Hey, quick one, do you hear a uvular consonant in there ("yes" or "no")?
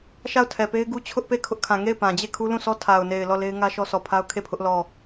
no